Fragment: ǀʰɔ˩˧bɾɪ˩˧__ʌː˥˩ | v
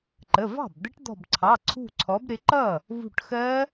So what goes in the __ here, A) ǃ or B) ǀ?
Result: A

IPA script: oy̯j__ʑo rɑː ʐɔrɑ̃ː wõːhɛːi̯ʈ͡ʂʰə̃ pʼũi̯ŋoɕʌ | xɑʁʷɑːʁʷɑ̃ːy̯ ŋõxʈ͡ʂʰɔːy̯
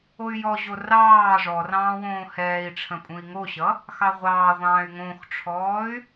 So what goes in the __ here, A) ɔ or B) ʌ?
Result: A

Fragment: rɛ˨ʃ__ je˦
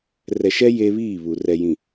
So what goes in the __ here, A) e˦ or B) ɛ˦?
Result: B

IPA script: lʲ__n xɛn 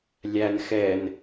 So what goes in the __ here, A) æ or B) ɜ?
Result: A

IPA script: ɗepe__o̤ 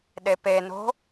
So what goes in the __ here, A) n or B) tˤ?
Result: A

